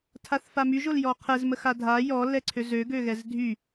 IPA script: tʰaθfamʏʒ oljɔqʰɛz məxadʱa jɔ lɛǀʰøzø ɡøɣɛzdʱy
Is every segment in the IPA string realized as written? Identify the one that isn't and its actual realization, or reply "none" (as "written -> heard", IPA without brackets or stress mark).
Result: ʏ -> y